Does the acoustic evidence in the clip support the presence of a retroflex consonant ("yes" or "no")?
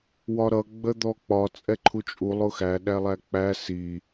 no